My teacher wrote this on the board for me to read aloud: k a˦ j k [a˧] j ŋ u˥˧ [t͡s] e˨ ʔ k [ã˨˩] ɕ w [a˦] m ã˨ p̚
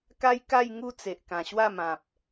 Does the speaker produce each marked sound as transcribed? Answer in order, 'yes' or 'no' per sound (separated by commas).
no, yes, yes, no